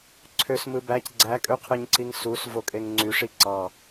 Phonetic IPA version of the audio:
ǀʰ ø s m ɯ b æ c ɡ͡ǀ æ kʼ ø qʰ ɯ ɲ ǀ i ŋ s u s v o kʼ e ŋ ŋ͡ǀ y ʂ i ǀ ɑ

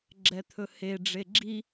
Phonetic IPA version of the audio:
ɡ͡ǁ ɛ t̪ʰ ɵ h e ɖ͡ʐ e ɡ͡ǁ i

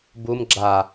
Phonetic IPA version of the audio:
b u m ɡ͡ǁ a

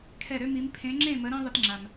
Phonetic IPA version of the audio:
kʰ ɛ˧˩ ɾ ø˦ m i˨˦ m pʰ ẽ˨˦ ŋ͡ǁ ẽ˥˨ m ə˨˦ ɾ ẽ˦ ðˤ ə˦ t ŋ͡ǁ a˩ m

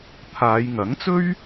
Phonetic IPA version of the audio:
t̪ʰ aː˨˧ j ŋ ɐ˨˥ ŋ t͡s ɵ˥ ɥ

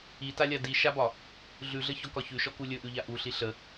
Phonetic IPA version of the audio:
i t a lʲ a d i ʃ a b ɒ | ɮ ʉ ɮ ə ç ɔ k ɒ ç ʉ ʃ ɔ k u lʲ ɵ ʔ ʉ ʎ a ʔ u ɬ i ɬ ə

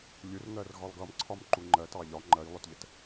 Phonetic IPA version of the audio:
lʲ u r ŋ ɜ r ɣ ɒ lˠ ɡ ʌ m ǀʰ ɒ m ǃ u ŋ͡ǃ ɜ t ɑ ʎ ɒ ŋ͡ǃ ɜ j lˠ ʊ t ʎ ə t

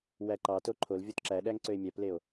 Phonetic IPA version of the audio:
w æ ǃ ɑ t o ǃʰ o l vʲ o t ǁ æ ɗ æ ŋ ǀ ø e̯ mʲ æ p l e o̯

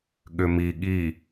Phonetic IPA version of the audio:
ɠ ʏ m i ɠ i

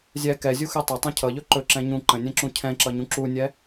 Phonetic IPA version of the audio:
zʲ ɛ k ɛ zʲ u x ɛ tˤ ʌ tˤ ũ cʰ ʌ ʎ ɵ ǃ ɵ ǁ ɛ̃ ɲ ũ ǃ ə̃ nʲ ɛ̃ ǁ ũ cʰ ɛ̃ ǁ ʌ ɲ ũ ǁ u nʲ ɛ

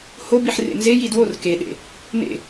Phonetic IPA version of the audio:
h o b i ħ r ḛ n z e j i d w o r k e ɗ ḛ | n ḛ

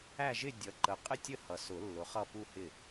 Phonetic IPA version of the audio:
æ˥˧ ʒ ɪ˥˧ dʲ ʌ˨˥ ǃ ə˨ qʼ ɪ˥˧ tʲ ə˥˩ h ʌ˨ s ʊ˨˩˦ lː ʊ˨˥ χ ʌ˥˧ p u˥˧ h ɪ˥˩

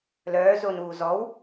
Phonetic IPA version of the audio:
l œː z o n uː z ɔ w

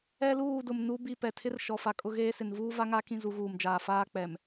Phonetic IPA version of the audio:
ɛ˦ l uː˦˨ d ʊ˨ m n u˦ b i˦˨ p ɛ˨ tʰ ɪ˦ r ʃ ɔ˨ f a˨ kʼ ʊ˦ ɣ eː˦ s ɪ˨ n v uː˦ v a˦ ŋ a˦ k ĩ˦ z u˨˦ ɣ uː˨ m d͡ʒ aː˨ f aː˦ k͡p ɛ˨ m

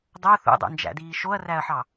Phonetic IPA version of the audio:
dˤ o θ ṵ dˤ o̰ n d͡ʒ æ̰ d iː ʃ o ɐ̯ r æ ɐ̯ ħ ɑ

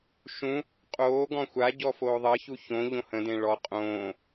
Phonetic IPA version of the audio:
ʃ ũ | qʼ oː ɡ ɔ̃ xʷ a ɟ ɔ f oː ðˤ ɜ ç u ç õ ʎ õ h ə̃ d ẽ ɭ ɔ qʼ õː

